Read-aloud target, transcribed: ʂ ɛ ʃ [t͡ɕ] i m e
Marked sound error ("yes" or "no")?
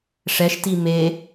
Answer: yes